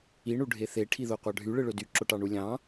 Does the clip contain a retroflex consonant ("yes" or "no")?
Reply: yes